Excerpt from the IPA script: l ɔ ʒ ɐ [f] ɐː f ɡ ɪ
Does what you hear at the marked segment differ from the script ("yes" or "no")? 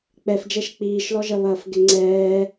yes